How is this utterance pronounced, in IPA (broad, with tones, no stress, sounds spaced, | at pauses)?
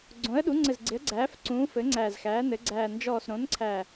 ɡ͡ǀ õ˩˥ ə̯ ɗ u˩˥ ŋ͡ǀ ɘ˨˩ z ɡ͡ǀ ɪ˩˥ ə̯ ɡ͡ǀ æː˩˥ f ǀ ũː˩˥ f ɘ˩˥ ŋ͡ǀ æː˨˩ z x æː˩˥ n ɘ˩˥ ɡ͡ǀ æː˨˩ n d͡ʒ ɔː˨˩ s ɾ õ˩˥ n ǀʰ æ˨˩